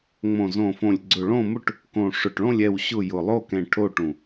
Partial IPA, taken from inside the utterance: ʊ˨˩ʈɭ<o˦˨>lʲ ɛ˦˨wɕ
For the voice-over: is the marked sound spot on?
no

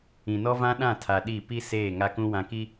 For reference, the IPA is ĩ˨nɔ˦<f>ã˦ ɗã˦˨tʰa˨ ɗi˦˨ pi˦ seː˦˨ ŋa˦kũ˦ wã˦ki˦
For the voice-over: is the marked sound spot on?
no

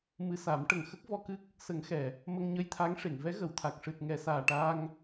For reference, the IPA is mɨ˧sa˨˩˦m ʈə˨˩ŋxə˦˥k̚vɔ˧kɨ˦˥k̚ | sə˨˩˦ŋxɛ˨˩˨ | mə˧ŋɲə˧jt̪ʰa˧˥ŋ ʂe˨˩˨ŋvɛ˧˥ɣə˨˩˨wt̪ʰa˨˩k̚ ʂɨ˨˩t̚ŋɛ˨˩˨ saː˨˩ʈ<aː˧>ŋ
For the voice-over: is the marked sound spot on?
yes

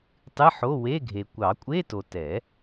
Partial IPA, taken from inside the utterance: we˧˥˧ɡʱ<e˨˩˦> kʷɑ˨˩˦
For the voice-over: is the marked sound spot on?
no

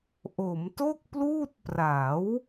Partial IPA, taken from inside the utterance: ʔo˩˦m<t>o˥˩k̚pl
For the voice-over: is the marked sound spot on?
yes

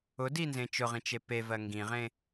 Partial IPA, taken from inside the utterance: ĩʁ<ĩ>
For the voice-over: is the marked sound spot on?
no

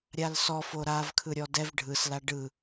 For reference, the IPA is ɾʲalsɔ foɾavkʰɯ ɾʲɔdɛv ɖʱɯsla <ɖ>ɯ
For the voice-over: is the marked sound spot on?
yes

